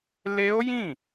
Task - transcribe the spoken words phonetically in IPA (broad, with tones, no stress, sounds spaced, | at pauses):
l e˦˥ o̯ j ĩ˥˩